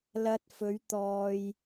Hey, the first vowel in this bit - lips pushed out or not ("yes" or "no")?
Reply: no